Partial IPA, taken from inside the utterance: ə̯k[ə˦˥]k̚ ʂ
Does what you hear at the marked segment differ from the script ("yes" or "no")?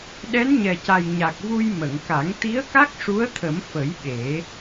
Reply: yes